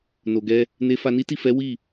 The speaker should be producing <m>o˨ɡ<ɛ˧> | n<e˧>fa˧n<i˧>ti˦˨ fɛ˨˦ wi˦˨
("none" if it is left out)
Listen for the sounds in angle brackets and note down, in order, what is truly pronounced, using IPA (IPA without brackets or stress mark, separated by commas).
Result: n, ɛ˧, e˧, i˦